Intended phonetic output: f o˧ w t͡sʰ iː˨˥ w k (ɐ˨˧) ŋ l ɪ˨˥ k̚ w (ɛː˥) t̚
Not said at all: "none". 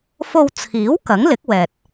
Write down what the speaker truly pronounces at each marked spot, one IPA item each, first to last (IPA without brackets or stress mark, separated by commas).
ɐ˨˥, ɛː˨